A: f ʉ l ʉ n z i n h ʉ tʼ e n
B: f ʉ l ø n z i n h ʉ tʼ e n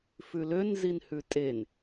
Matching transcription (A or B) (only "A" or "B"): B